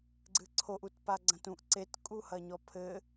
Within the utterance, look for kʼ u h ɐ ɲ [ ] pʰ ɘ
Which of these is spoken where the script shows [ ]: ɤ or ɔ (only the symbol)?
ɔ